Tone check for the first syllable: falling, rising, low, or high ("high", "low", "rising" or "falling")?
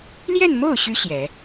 falling